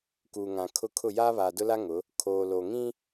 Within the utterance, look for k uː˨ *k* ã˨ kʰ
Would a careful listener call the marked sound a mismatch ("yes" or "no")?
yes